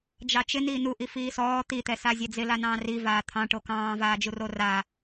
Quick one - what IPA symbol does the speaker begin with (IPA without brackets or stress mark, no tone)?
d͡ʒ